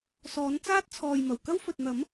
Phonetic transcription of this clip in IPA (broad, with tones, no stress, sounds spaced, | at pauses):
s ɔː˨˥ n t͡s aː˥ t̚ t͡sʰ ɔː˨ j m ɐ˨˩ w k ɐ˥ w f ɵ˨ t̚ n̪ ɐ˨˥ m